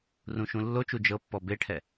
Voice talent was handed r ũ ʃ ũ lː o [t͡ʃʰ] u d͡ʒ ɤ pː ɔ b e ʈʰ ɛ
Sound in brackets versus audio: incorrect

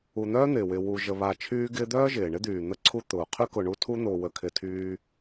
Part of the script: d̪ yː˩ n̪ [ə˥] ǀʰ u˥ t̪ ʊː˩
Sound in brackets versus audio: correct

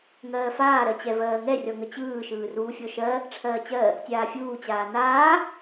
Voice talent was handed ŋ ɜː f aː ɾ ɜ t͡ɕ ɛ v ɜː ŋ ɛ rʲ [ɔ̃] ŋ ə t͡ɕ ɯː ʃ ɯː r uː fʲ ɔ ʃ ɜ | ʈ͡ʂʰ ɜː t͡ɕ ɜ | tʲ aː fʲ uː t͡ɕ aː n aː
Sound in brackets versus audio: incorrect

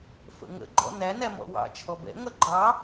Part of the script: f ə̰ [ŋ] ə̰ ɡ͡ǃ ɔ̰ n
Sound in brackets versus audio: correct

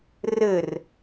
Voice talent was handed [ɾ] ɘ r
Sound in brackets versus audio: incorrect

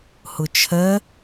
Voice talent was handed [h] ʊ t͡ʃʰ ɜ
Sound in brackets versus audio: correct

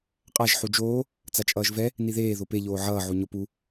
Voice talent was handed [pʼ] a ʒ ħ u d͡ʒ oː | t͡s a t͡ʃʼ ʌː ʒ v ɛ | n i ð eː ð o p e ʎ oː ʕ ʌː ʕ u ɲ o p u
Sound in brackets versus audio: incorrect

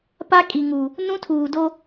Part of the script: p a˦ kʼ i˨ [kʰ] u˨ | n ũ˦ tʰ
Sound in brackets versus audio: incorrect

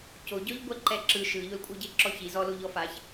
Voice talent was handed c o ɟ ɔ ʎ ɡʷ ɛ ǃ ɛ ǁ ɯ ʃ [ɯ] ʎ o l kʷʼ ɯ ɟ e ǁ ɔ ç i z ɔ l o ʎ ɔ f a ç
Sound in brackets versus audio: correct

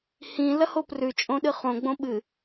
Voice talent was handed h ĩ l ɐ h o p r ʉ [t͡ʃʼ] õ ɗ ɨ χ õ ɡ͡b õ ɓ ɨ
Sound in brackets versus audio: correct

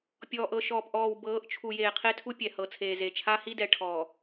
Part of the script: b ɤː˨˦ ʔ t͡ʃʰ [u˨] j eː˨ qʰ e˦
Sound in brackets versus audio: correct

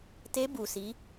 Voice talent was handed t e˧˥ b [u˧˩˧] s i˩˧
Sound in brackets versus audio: correct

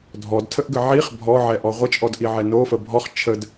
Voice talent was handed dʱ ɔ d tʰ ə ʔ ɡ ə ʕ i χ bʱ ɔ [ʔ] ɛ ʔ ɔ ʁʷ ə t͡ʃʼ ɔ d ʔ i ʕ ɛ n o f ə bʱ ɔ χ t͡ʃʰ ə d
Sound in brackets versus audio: incorrect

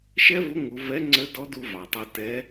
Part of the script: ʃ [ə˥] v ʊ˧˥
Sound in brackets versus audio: incorrect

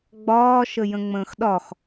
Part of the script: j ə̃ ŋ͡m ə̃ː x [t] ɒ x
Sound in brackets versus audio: incorrect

